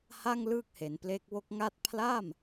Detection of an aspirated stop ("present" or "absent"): present